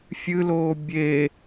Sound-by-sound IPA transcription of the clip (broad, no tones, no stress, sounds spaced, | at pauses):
fʲ ɨ l oː bʲ e